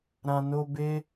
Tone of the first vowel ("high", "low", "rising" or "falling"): low